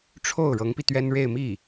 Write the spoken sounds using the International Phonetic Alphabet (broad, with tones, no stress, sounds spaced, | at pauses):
ʈ͡ʂʰ o˥˩ ʊ̯ ɻ ɤ˧˥ ŋ p i˧ t̪ ɥ ɛ˥ n ɻ e˥˧ ɪ̯ m i˥˩